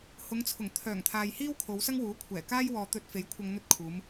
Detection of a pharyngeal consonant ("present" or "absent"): absent